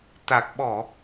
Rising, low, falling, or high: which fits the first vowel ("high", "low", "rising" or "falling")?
low